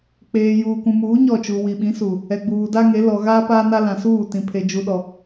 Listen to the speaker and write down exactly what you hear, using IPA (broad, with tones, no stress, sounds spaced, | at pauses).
k͡p eː˨ j uː˨ kʷ ũ˨ m uː˨˦ ɲ ɔ˦˨ t͡ʃ u˨ w i˨ ɓ ĩ˨˦ s u˨ | ɛ˨ ɡ͡b uː˨ d a˦ ŋ e˨˦ l ɔ˨ ɣ aː˦ p aː˦ n a˦ l ã˨ s uː˦˨ t ĩ˨ pʰ e˨ d͡ʒ u˨ ɗ ɔ˨